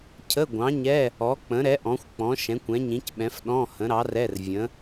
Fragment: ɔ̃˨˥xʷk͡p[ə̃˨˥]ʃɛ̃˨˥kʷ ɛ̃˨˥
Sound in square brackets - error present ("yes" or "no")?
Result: yes